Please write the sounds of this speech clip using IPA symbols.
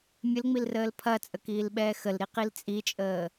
mʲ ə l ŋ͡m i l r əː l pʰ ɐ t͡sʼ ə k iː l ɓ ɛː x ə l ɾ i q i l t͡sʼ i t͡ʃʼ əː

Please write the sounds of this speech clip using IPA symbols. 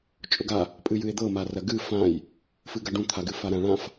t͡ʃʼ ʊ ɡ a | pʼ ɨ j ɨ e̯ d̪ ɤ m a r ɐ ɡ ɨ f ã j | f ɨ ɡ ɐ ɖ ũ t̪ʰ a ɡ ɨ f a ɾ ã ɭ ã f

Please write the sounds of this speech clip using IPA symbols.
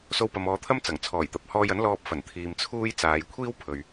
s o˧ w p ɐ˨ m ɔː˨˧ t̪ʰ ɐ˥ m t͡s ɐ˨˩ ŋ t͡sʰ ɔː˨˩ j t̪ ɐ˨ p̚ h ɔː˧ j ɐ˨˥ n l ɔː˧ p̚ f ɐ˨˩ n t̪ʰ iː˨ m t͡sʰ uː˧ j t͡s aː˨ j kʷʰ iː˥ w pʰ ɵ˨ ɥ

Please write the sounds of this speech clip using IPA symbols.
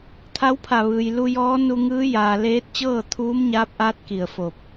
t̪ʰ a˧˥ w pʰ a˧˩ ʋ ɯː˩ j l u˧ j ɔː˧˥ n u˧ ŋ ɯː˧˥ j aː˩ l eː˧˥ t̚ t͡ɕ ɤː˥˨ t̪ʰ uː˧˥ m ɲ aː˧˥ p̚ ʔ aː˧˥ t̚ k i˧˩ ə̯ f o˧˩ p̚

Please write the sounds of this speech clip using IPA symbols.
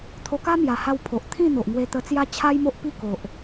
t̪ʰ o˧ k a˦ m j a˨˩ h a˧ w pʰ o˨ ʔ t̪ʰ ĩ˥˧ n̪ o˨ ʔ ŋ w e˧ t̪ ə˧ t͡s j a˦ t͡ɕʰ a˦ j m o˦ ʔ p i˥˧ k o˨ ʔ

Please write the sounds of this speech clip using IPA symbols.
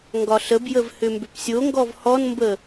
ŋ ɡ ɒ ɬ ə b j ə v h ʏ m b ʏ p sʲ o ŋ ɡ ɔ v h ɔ n m b ə

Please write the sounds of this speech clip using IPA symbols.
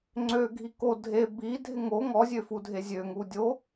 ŋ͡ǀ ø ɡʱ i k o dʱ e b i dʱ ɪ ŋ o ŋ ɔ zʲ ø f u dʱ e zʲ ø ŋ u dʲ o

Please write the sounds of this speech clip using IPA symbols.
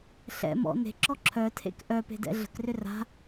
ɬ ɛ̰ m ɔ̰ n e̤ ǁ ɔ ǁʰ œ tʰ ḛ k ʔ œ p e̤ d ɛ̰ ɮ ə̤ k r ʏ r a̤

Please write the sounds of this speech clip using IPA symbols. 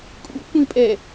kʼ ṵ kʷ ĩ pʼ ɛ

